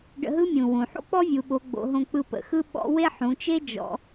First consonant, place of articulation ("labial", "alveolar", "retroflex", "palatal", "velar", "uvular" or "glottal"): retroflex